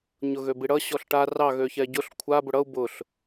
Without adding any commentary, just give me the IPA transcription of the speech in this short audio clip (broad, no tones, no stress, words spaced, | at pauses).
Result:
ɲʊɣøbiɽʌ ɕɔɬʈa rɑ ɣøçɛɟʊɬ kʷʰa bʊɽʌu̯ bʊɬ